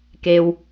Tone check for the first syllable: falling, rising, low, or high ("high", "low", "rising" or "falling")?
low